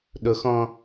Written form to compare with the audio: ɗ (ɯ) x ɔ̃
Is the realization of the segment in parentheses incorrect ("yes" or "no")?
yes